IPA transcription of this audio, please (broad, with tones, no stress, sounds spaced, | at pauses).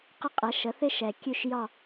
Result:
q ɪ˥ qʼ ɛ˩˥ ʃ ə˩˥ θ ɪ˥ ʃ ɛ˩ kʲ ʉ˦˨ ʃ j ɒ˦˨